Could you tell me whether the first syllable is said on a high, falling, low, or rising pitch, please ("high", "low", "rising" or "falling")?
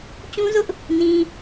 high